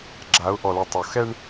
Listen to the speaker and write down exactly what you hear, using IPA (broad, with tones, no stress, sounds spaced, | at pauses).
ɡ͡ǁ a˨˦ ʊ̯ ʔ ɔ˨ l ɯ˨ tˤ o˨ x ɛ˦ ɳ